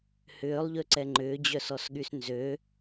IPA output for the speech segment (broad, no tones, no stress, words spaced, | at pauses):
hʏːlˠʎøǀɛ ŋ͡ǃʏːd͡ʑœsɔsɠys nzø